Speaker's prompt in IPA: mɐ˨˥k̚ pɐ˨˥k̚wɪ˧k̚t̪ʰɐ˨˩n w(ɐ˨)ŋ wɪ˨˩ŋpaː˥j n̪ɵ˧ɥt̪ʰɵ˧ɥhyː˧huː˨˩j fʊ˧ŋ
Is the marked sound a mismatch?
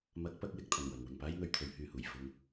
no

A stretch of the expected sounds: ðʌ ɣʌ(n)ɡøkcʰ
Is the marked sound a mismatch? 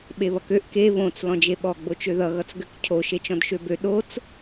yes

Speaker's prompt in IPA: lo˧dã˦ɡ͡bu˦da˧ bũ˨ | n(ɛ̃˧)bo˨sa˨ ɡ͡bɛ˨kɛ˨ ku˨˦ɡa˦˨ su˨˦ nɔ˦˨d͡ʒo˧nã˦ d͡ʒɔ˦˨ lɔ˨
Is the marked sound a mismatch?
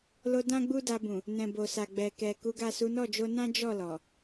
yes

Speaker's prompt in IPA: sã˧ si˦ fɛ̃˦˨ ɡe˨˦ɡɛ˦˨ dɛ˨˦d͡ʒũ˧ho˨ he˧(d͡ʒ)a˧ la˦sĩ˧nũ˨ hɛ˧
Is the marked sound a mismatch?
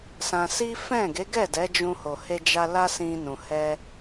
no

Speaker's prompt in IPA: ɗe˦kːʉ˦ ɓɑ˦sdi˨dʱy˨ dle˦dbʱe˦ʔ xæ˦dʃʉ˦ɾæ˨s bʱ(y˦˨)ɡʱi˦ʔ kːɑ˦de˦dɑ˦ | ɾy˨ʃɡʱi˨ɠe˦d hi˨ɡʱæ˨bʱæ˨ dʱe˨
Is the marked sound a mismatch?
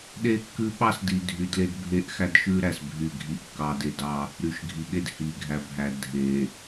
no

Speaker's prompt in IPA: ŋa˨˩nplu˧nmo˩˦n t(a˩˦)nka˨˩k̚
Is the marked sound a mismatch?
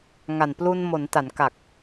no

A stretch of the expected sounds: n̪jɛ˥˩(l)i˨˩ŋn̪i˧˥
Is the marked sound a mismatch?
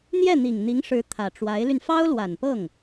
yes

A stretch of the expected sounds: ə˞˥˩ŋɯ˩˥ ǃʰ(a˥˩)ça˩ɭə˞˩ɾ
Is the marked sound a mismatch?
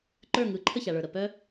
yes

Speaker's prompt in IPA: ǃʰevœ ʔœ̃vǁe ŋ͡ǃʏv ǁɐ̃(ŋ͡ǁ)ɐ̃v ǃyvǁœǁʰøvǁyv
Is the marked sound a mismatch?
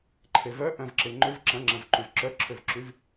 no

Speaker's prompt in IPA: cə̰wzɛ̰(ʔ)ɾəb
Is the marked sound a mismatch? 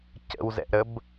no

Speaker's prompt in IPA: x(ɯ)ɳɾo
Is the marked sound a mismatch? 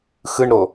no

